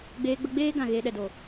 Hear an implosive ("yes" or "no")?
yes